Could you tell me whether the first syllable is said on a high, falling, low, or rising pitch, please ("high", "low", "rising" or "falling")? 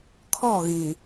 falling